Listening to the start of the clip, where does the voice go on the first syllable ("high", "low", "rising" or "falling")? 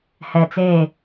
low